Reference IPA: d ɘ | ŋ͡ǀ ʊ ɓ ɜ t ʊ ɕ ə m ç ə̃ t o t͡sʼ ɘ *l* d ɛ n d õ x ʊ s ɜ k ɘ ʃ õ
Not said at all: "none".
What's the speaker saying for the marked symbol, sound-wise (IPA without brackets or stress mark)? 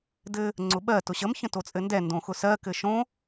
n